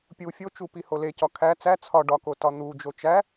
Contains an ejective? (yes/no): no